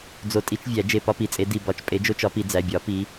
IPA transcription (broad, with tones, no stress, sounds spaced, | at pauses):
d͡z o˧˩ tʼ i˦ t͡ʃ vʲ æ˨˩˦ d͡ʒ e˧˩ p ɒ˦ p i˩˧˩ t͡sʼ e˨˦ d i˧˩ b ɒ˧˩ t͡ʃ pʼ e˨˦ d͡ʒ o˦ t͡ʃ ɒ˨˦ p i˨˩˦ d͡z æ˩˧˩ bʲ ɒ˨˩˦ p i˨˦